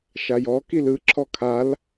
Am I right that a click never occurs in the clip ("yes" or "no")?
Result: no